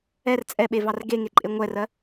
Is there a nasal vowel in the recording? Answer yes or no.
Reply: no